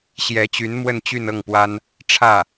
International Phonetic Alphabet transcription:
ɕjɛ˧˥t͡ɕy˧˥n mwə˥˧nt͡ɕy˥˧n ɤ˥˩ŋpwa˥n | ʈ͡ʂʰä˥˩

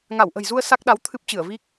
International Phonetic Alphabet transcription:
ŋa˧˩wʔə̤˨˩jzu˧ə̯ sa˦˥k̚ɗa˨˦w t̪ʰɨ˦˥p̚t͡ɕɨ˧˩ə̯vi˦˥k̚

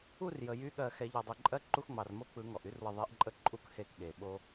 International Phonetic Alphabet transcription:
u˥˧rjə˩ jy˧˥ɠɜ˧˩xɛ˨˩˦ ʎɔ˩dˤɯ˩ǃʼɜ˧˥ ǃu˧xŋ͡mɑ˩rmo˧ k͡pɯ˨˩˦ŋɔ˩ʔy˧˥rwə˧˩ ðˤe˧˥ʔǃʼə˥˧ ǃʼu˧˩khe˧˩k ɠe˩ ɓo˧

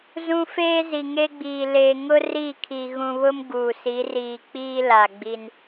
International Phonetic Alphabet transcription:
zũ˦ feː˦zi˨ŋe˦ɡ͡biː˨ leː˨ŋʊ˦ riː˦˨kʰi˨ ɣũ˨βʊ˦m ɡuː˨si˨˦ riː˨k͡piː˦ la˨ɡ͡bi˦n

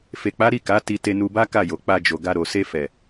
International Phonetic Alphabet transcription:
fe˨k͡pa˨˦ ɾi˦˨ka˨˦ ti˧te˧nu˧ba˦ ka˦˨jo˨k͡pa˧ d͡ʒo˨ɡa˧ ɾo˨se˧fɛ˨

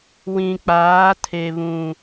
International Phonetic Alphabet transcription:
wĩ˨k͡paː˨˦ tʰe˨βũ˨

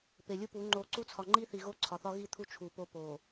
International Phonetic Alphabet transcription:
pe˨lʲu˦pu˨˦ ŋ͡ǃo˨ ǀu˦t͡sʰɒ˨ ŋ͡ǃi˦θi˨ɣo˦ ǀʰɒ˨θɒ˦ ɣi˦t̪ʰu˦ t͡ʃʰu˨ po˦ po˨

